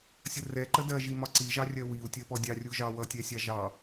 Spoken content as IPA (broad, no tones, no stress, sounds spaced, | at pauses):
sʲ ə r ɛ ǃ ə d ɜ ʒ i m ɒ ǀ i ʒ ɑ rʲ ɜ w i u̯ tʲ ɜ p ɔ dʲ ɑ rʲ u ʒ ɑ w ʌ tʲ ɛ sʲ ɑ ʒ ɑ